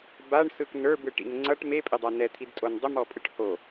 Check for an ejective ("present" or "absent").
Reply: present